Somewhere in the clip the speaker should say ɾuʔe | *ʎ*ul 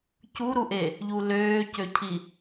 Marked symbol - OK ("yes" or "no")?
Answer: yes